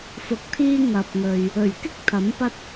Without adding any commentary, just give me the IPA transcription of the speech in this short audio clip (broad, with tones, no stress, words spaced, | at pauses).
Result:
fʊ˧k̚t̪ʰiː˥ ŋɐ˨p̚ŋɵ˨ɥ | ɵ˨˩ɥkɪ˥k̚ t̪ʰɐ˨˥mpɐ˥t̚